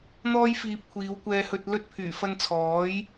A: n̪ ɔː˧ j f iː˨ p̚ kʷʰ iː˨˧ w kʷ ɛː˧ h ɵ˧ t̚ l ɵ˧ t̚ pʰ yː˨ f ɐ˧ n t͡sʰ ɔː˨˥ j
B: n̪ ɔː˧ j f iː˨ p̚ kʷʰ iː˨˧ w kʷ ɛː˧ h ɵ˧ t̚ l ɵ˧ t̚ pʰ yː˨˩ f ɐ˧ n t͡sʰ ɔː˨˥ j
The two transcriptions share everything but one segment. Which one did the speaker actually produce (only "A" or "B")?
B